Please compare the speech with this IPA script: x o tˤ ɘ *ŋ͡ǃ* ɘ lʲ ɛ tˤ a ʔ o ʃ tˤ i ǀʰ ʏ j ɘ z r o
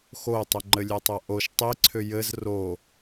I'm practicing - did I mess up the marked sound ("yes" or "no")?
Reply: no